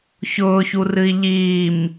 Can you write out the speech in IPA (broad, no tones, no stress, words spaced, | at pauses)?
çʊːçurɨi̯ ʎiːm